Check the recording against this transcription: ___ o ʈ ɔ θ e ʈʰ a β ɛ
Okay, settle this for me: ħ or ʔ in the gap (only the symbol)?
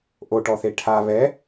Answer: ʔ